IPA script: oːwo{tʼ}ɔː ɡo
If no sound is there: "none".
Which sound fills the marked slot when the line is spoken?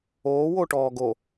ʈ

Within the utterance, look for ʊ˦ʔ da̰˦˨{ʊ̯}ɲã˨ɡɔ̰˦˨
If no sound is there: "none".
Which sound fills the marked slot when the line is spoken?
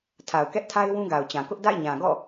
ɪ̯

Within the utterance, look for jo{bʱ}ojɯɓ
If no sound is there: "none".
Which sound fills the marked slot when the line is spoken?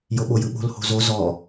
ɓ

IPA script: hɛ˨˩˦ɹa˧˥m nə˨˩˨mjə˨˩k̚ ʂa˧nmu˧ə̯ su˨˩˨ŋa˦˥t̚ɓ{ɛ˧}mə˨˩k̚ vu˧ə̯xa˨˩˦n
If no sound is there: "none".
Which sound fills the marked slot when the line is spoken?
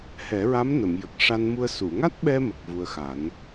ɛ˧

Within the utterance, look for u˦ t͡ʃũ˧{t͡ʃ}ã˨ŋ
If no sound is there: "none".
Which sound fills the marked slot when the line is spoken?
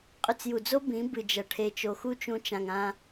t͡ʃ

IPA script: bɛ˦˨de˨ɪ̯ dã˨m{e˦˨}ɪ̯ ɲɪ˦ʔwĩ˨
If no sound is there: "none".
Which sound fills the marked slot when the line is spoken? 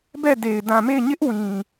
e˦˨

